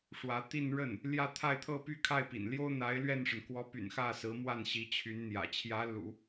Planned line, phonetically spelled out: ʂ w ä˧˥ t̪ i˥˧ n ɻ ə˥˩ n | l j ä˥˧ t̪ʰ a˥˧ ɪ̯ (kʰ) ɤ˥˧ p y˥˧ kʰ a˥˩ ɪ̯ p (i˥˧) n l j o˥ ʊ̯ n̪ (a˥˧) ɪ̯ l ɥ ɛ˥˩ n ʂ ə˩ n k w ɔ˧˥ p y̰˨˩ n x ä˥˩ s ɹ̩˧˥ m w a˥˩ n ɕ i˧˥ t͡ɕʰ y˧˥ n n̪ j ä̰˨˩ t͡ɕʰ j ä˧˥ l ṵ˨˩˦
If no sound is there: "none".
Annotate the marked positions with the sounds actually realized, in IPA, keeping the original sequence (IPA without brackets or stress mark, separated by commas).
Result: t̪ʰ, ḭ˨˩, a˧˥